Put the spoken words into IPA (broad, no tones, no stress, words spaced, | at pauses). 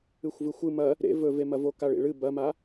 ɨxʷvɨxʷɨ mɐ | ɾḛ vɵvemɐvo kaɭḭɭɨ bɐma